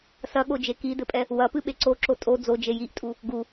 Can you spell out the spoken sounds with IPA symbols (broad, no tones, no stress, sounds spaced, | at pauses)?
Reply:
s ɐ ɠ o d͡ʒ e k i d ɘ pʼ ɛ | w ɐ p ɨ ɓ e ǀ o ǁ o tʼ o d͡z o d͡ʒ e j i ʔ tʼ u | ɡ u